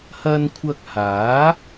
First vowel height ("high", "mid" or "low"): low